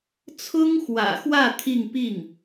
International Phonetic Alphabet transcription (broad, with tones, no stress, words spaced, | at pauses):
t͡sʰʊ˥ŋxwä̰˨˩xwä˥˧ t̪ʰi˥˧ŋ pi˥˩ŋ